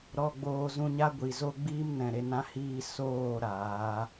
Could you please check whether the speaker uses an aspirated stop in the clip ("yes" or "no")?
no